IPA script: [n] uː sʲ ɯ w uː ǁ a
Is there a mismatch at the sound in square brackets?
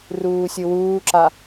yes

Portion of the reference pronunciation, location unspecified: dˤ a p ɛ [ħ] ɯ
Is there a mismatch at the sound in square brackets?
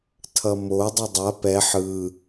no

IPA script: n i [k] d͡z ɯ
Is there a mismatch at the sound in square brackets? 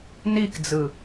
no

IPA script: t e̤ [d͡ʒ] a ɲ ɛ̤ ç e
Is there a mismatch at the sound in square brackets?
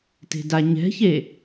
yes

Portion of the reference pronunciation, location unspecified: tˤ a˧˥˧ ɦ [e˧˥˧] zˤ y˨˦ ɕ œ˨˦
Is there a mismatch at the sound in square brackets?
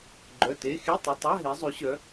yes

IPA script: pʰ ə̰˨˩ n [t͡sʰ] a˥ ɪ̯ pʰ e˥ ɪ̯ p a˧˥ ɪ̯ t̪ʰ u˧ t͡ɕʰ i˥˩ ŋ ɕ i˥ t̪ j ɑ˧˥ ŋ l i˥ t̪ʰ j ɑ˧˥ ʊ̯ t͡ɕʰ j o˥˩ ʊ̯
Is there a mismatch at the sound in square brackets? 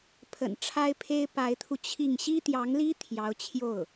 yes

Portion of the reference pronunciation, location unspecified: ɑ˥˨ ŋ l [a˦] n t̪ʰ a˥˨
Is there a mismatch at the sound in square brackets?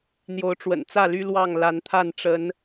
yes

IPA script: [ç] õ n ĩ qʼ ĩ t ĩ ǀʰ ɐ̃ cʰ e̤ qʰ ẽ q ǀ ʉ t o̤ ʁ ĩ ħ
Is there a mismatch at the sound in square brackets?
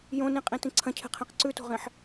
yes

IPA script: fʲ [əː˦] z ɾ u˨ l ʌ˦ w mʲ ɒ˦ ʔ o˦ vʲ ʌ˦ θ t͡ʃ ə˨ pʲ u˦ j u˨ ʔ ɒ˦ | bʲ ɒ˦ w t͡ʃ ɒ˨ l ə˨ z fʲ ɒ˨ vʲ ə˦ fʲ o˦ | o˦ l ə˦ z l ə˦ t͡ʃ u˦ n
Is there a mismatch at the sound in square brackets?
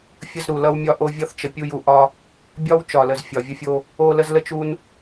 yes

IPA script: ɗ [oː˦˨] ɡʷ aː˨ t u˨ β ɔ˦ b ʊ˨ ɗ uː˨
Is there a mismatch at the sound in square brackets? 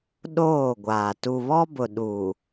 no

